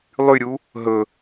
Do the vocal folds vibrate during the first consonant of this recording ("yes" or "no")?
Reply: yes